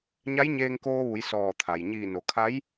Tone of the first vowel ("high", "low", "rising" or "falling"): rising